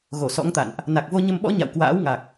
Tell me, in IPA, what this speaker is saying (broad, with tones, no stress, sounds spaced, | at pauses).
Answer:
ɣ o˧˩ s ɔ̰˧˥ ŋ t̪ a̰˧˨ n ʔ | n a˨˩ k̚ v o˧ ɲ ə˧ m ɓ ɔ̰˧˥ ɲ a̰˧˨ w k w a̰ː˧˥ w ŋ a˨˩ k̚